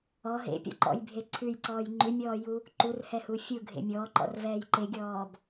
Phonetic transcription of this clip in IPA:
ɔ ɦḛpʲɔ̰ǃɔ̰jbʱe ǀʰʉjǀɔːj ŋ͡ǃʉmʲɔːju | ǃurhɛhu fʲuɡʱḛ mʲɔːǃɔ̰rvɛːj ǃeɡʲɔːb

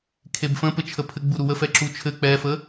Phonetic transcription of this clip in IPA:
kʰebfə̃pɘt͡ʃʰə pʰɘɡ͡bu ɾuwəfɛǁu t͡ʃʰɘ k͡pɛfə

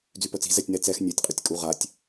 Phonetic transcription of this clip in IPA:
d͡zypœt͡si̤ zɛtʲnɛ t͡sɛx nʲatʲqʼytʲ kʼuʁatʲ

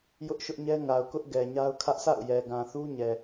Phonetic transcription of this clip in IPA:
jʊ˦ʔʃʊ˦ʔɲɛ˦ŋa˨ʊ̯ kʊ˦ʔ ɡɛ˨ɲa˦ʊ̯ kʰä˦ʔ sʰa̰˦˨ʊ̯jɛ˨ ɡã˨θu˦ ɲɛ˨

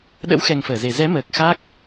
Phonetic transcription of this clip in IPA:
ɗə̰˧˥wxɛ˨˩ŋ fəː˧˩ze˨˩ zɛ˨˦məː˨˩k̚ xa˦˥k̚

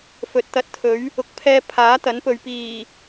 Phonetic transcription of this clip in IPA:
fɵ˨˥t̚ t̪ɐ˧t̚t̪ʰɵ˨˥ɥ | ʊ˨˥k̚pʰɛː˧ pʰaː˨˥t̪ɐ˨˥npɵ˨ɥ piː˨˩

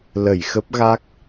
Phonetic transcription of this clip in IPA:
lə˧˩jxə˦˥p̚ɣa˦˥k̚

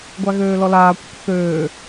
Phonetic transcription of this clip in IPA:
ɡʷaɣøːlɔlaː kʷə̰kʷθøː

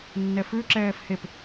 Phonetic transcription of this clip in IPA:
nːɛfʉ ǁɛːfhep

